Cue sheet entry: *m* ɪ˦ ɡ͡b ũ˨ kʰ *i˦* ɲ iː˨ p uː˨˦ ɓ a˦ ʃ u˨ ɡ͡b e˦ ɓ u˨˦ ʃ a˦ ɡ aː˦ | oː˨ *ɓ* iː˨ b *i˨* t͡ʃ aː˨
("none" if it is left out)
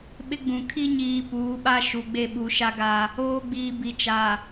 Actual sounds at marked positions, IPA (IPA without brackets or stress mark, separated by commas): ɓ, i˦, ɡ͡b, i˨